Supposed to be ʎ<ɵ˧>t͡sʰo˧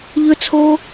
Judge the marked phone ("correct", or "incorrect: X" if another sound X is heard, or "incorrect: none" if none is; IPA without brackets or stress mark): correct